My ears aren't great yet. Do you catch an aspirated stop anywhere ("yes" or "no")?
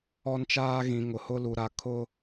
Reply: yes